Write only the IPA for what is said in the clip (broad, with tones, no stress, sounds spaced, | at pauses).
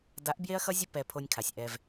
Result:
d a˨˦ ʔ b j e˦ ɐ̯ x ʌ˦ zʲ ʊ˦ p ɛ˧ pʰ o˧ nʲ kʰ a˨ sʲ ʔ ɛ˧ v